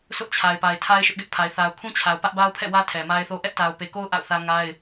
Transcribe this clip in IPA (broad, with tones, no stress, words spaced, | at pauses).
sʊ˦ʔt͡ɕʰa˨ɪ̯pa˨ɪ̯ tʰa˦ɪ̯ ʃʊ˦ʔɡɛ˦ʔpʰa˨ɪ̯ θa˨ʊ̯kʰũ˦t͡ɕʰa˨ʊ̯ pä˦ʔba˦ʊ̯pʰɛ̰˦˨wä˦ tʰɛ˨ma˦ɪ̯θo˦ ʔɛ˦ʔta˨ʊ̯pe˨ko˦ʊ̯ ʔa̰˦˨ʊ̯θä˦ŋa˦ɪ̯